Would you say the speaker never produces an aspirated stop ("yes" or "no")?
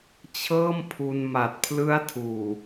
no